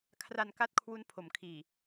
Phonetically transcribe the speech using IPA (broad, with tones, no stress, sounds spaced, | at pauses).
kʰ r a˧ n k a˥˩ t̚ kʰ w u˦˥ n pʰ o˩˦ m kʰ iː˨˩